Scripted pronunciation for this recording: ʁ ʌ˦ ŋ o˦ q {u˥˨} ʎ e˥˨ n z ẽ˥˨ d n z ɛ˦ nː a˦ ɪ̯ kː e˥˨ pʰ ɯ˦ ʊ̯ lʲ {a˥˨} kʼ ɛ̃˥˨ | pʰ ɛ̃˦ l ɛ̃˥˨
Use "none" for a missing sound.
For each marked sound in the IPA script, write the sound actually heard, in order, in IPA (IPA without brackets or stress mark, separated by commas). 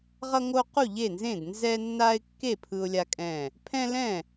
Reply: u˥˨, a˦